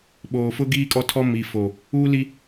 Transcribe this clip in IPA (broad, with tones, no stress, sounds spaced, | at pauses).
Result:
ɓ oː˨ f ʊ˦ ɡ iː˦ kʼ ɔ˦ tʰ ɔ˦ m i˨ f o˨ | uː˦ l i˦